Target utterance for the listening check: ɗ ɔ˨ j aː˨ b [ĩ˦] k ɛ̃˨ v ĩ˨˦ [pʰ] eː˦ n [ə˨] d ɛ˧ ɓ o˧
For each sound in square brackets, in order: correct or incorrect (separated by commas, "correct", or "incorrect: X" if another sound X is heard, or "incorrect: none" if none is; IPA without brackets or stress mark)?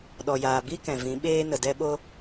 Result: incorrect: i˦, incorrect: ɓ, correct